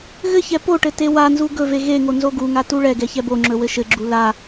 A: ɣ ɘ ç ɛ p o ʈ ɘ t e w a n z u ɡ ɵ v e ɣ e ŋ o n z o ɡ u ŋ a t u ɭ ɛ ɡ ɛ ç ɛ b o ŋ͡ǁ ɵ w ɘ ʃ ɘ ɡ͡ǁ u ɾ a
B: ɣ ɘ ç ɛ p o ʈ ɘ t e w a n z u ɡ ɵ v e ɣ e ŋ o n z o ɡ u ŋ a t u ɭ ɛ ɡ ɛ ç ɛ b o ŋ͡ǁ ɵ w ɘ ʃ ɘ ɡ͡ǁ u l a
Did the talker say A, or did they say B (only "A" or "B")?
B